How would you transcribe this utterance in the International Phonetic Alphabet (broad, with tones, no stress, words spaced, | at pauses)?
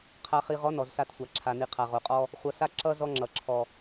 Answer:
qʰa˨χi˨ʁɔ˨˦ nɔ˨zsa˦˨tsʷa˨ǁʰa˨ ni˨qʰa˨ʁo˨qʼɔ˦ | χʷʌ˨sa˦ ǁʌ˦ zɔ˦ŋ͡ǁʌ˨ ǁʰɔ˨